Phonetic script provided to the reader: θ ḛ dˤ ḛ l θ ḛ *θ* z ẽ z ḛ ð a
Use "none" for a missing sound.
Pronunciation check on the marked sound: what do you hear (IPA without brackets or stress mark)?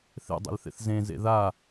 θ